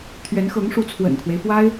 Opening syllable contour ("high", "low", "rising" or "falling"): rising